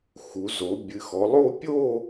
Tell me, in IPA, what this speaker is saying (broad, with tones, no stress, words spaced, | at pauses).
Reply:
xu˩˧zo˩˧ bʲɨ˩˧xɔ˩˧lˠo˥˨ pʲo˥˨